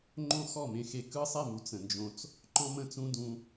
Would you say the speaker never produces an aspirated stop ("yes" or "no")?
yes